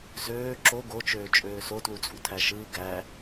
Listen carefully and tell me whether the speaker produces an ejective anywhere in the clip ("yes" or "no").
yes